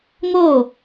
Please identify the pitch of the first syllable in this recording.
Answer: falling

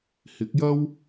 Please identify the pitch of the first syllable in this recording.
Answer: rising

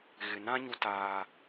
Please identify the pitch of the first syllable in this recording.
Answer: low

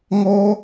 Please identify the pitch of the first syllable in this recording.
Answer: high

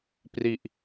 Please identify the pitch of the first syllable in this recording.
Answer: low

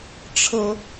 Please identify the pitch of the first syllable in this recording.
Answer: high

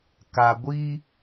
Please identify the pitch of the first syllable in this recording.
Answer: low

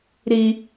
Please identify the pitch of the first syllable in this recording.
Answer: high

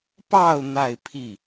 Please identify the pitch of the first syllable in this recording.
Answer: falling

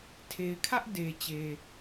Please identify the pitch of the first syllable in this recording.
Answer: low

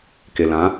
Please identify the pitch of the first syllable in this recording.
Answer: low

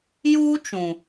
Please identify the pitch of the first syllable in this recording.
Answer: high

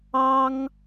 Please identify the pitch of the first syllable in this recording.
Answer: high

